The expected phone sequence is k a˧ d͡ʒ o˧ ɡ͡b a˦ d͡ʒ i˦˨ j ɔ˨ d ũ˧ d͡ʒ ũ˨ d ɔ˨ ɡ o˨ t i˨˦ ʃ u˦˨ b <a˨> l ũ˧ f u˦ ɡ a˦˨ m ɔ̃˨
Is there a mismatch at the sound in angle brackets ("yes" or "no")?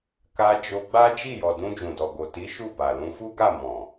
no